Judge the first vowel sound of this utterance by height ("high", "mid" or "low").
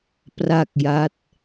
low